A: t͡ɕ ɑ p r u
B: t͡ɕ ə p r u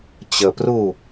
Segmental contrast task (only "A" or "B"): B